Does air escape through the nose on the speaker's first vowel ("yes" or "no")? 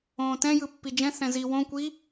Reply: yes